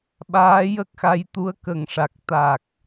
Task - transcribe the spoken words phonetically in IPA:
ɓaː˧˥jə˦˥k̚xa˧jt̪u˧˥ə̯ kə˨˩ŋʂa˨˩k̚ t̪a˨˩k̚

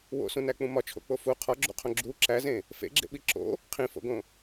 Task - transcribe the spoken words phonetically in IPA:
wo̰sũnæk͡pũ mɒt͡ʃʰo̰k͡po fu qʰɒɡ͡ǁṵqʰõ ɡ͡ǁu ǁæzẽ | fḛɡ͡ǁḛɓi ǁo̰ | qʰĩfo̰ɡõ

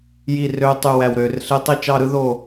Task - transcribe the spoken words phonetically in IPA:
ji˥˧rø˥ tˤy˥˧wæ˥˧wɾø˥˧r ɬe˥ tˤi˥˧t͡ʃɑ˥˧ɾɯ˥ ðo˥˧

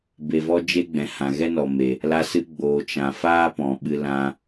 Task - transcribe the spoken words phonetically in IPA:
be˨vɔ˧ d͡ʒe˦ɡ͡bɛ̃˨ hã˨ɣɛ˦nɔ˨me˨ | la˧sɨ˧ ɡ͡boː˨t͡ʃã˨ faː˦pɔ̃˨ɓɨ˧ lã˧

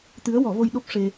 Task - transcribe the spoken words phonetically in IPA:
t̪ɨ˧˥ə̯wɔ˨˩˦vo˧j ɗo˦˥p̚ ʂe˧

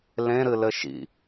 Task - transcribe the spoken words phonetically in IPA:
lẽɾɨ lɘʃḭ

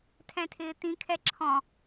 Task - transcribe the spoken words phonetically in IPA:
tʰɛ̃tʰɪːt̪ĩkʰɛ ǁʰɔ̃

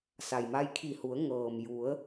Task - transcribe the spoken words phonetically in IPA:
sa˩jma˧jkʰi˧˩hu˩˧ə̯ ŋɤː˩m ju˩˧ə̯

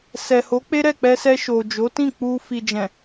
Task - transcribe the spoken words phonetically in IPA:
sɛ˨ho˨˦ k͡pe˦ɾɛ˦˨k͡pɛ˧sɛ˧ ʃo˨d͡ʒo˨˦tĩ˦˨ k͡pu˧ fi˨d͡ʒɛ̃˨

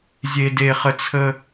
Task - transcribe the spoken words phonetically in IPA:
zʲe˥de˥χə˥ t͡sʰə˥

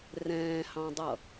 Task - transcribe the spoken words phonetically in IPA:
rɛ̃ːhɑ̃dˤʌ

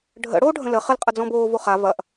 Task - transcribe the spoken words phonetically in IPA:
ɖʱə̰ ɽoːɖʱə̃lə χəl qʼɐd͡zɔ̃boː voχa vɐʔ

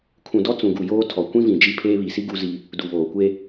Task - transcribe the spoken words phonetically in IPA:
kʰũ˨dɔ˦ t͡sũ˨ ɡu˨ joː˦tʰɔ˨ kʷĩ˦vĩ˨ d͡ʒi˦ pʰeː˦βi˨ si˦ ɡu˦zi˦ | du˨βoː˨kʷe˦

